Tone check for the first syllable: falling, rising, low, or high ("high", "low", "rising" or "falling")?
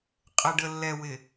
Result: low